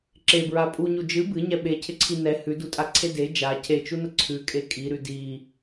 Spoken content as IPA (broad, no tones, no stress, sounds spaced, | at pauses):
ǁ e b ɹ a pʼ u ɲ u d͡ʒ ɨ b ɨ ɲ ɛ ɓ e cʰ ɪ ǀʰ i n ɛ h ʉ d u tʼ a ǀʰ e d e d͡ʒ a cʰ e t͡ʃ u n ə ǀʰ ʉ kʼ e kʼ i ɾ ʉ d i